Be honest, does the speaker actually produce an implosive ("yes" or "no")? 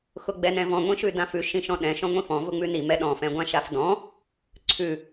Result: yes